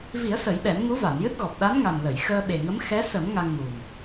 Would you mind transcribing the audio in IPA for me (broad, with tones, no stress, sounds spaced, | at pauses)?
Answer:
v i˨˩˦ ə̯ s ə˨˩˦ j ɓ ɛ˨˩˦ m ŋ u˧˥ v a˨˩˨ n j ɨ˦˥ t̚ ɣ ɔ˨˩ p̚ ɗ a˧˥ n ŋ a˨˩ n l ə˨˩˨ j x əː˧ ɓ e˨˩ ŋ ə˧˥ m x ɛ˧˥ s ə˨˩˦ m ŋ a˧ ŋ m u˨˩ m